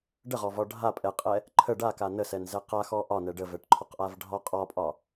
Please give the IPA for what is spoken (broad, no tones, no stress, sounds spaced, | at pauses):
ɖ ə ʁ ɔ v ɒ ɖʱ a pʼ ɛ qʼ ɛ | ǃʰ ə ɖ a k a n ə s ɛ n z ɛ q a x ɔ ʔ ɒ n ɛ ɖ ə v ɛ ʈ ǃʰ ɔ q ʔ a v ɖʱ ɒ qʼ ɒ pʼ ɒ